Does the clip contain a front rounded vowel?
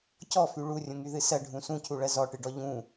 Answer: yes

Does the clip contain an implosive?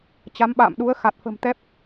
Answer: yes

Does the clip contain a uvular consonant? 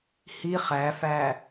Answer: yes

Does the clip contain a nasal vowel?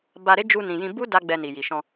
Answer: yes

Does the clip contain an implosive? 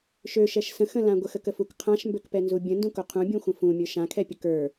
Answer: no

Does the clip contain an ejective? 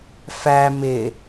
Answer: no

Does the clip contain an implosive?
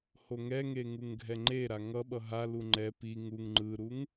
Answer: yes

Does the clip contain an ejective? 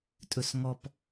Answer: yes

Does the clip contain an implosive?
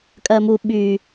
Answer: yes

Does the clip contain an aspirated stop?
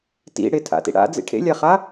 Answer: yes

